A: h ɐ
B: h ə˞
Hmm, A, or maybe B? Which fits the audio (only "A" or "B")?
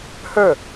B